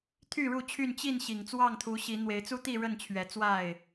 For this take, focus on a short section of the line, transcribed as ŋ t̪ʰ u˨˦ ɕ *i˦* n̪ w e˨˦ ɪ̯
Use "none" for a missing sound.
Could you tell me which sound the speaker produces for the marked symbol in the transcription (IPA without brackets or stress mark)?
i˨˦